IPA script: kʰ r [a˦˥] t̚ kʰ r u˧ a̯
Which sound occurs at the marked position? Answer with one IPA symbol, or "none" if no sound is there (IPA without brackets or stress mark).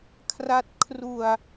a˦˥